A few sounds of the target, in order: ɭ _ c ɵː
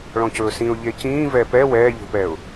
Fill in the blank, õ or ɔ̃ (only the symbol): ɔ̃